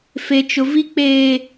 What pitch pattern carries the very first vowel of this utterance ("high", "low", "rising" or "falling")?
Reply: high